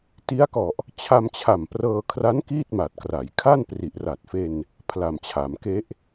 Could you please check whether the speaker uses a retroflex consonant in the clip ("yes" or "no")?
no